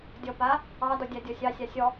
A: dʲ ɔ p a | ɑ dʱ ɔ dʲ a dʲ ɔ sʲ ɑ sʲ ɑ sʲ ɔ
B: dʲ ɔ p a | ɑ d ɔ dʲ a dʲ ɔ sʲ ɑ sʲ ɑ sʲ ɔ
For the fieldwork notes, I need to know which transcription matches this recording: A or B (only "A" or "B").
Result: B